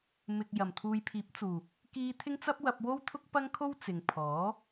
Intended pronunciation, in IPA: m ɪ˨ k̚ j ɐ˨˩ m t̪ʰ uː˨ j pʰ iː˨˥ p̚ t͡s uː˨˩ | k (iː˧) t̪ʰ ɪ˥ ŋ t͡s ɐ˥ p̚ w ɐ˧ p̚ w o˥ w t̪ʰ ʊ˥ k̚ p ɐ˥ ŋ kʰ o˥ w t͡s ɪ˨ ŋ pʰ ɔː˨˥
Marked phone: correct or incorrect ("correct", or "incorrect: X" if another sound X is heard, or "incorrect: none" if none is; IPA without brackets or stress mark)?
correct